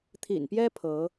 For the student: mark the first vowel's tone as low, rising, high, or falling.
low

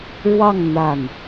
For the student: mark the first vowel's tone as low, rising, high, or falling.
falling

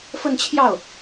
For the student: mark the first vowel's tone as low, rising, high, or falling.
falling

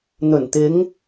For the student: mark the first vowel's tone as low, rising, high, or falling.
low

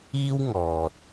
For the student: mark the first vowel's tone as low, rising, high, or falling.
high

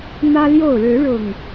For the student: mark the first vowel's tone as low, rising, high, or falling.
high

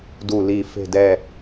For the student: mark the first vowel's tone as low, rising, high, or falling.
low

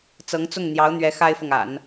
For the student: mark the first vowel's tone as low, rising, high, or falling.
rising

